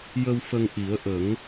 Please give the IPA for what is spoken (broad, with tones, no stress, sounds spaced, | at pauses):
j ə˧ w f ə˧ ŋ ʔ i˨˩˦ ə̯ ʔ ə˨˩˦ ŋ